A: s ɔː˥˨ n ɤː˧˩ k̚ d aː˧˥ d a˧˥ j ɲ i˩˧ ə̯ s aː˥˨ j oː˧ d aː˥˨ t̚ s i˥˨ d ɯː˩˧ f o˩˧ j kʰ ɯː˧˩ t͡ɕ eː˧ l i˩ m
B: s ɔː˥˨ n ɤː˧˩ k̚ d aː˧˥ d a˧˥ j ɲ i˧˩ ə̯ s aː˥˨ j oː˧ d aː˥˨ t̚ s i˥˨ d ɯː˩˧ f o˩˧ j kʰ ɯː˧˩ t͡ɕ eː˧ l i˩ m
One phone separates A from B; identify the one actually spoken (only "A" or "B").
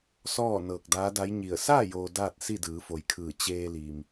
B